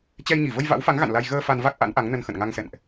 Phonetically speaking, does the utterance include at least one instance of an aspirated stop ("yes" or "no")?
no